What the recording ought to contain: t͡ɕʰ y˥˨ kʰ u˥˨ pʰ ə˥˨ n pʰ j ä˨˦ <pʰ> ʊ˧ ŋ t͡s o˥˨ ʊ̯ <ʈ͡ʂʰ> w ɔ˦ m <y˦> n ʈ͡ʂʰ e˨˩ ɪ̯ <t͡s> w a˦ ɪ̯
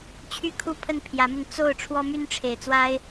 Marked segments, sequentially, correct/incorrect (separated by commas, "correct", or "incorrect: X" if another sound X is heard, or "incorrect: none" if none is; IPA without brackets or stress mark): incorrect: m, correct, correct, correct